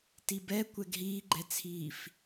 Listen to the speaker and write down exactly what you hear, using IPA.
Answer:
tibɛkʷɛɡ ɦiːɡ͡ǃɛt͡sʰiːf

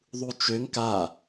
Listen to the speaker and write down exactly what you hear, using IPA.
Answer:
ðˤut͡ʃøŋ ka

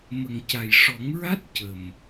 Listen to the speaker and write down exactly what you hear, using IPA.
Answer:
mə˨˩ŋ ca˨˩jʂɔ˨˩˦ŋɹa˦˥t̚ cə˨˩m

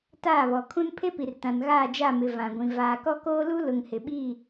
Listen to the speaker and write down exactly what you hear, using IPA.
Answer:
taː˦˨βɔ˨kʰũ˦n pʰe˦pi˨rtã˨n ɣaː˦˨d͡ʒa˦˨mɪ˨ vã˨ɡʷĩ˨ vaː˨kɔ˦koː˦ lu˦lʊ˨ŋhɪ˨ɓiː˦˨

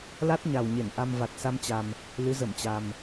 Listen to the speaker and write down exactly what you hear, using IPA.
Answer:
la˦˥t̚ɲa˨˩wɲe˧˩n ʔa˧mva˨˩t̚sa˧mt͡ɕa˨˩m | lɨ˨˦zə˧˩mt͡ɕa˨˩m

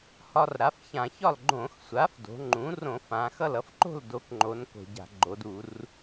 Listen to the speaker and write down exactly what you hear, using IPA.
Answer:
hɒ˧rɾa˩˥fçã˧˩˧çɒ˥˩l ɡ͡ǃõ˧˩˧xsʷa˩˥fdo̤˩˧ŋ͡ǃũ˩˥ rõ˧˩˧fã˩˧xʌ˥˩l ʌ˧fǃo̤˥˩ldo˩˥kŋ͡ǃo˩˧n ko̤˧˩˧ɟa̤˧˩˧ ɡ͡ǃo˩˧du˧˩˧r

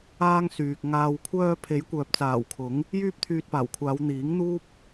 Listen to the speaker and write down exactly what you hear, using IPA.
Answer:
aː˥ŋsyː˨k̚ ŋaː˨wkʷʰœː˧ pʰe˨˥jkʷœː˨p̚t͡saː˨˩wkʰʊ˨˥ŋ | jyː˥p̚t̪ʰyː˧t̚paː˨˩wkʷʰaː˨˧w n̪iː˨˥ŋn̪uː˥p̚

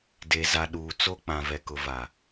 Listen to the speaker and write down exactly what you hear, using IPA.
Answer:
de˨za˨ ɗuː˨t͡so˦k͡pã˨ vɛ˨kʊ˨va˨

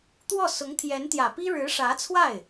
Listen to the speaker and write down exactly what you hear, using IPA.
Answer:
t̪wɔ˥˩ sʊ˧˥ŋt̪ʰjɛ˧˥nt̪jä˨˩pi˥ ɻɻ̩˧˥ʂä˧˥t͡sʰwa˥˩ɪ̯

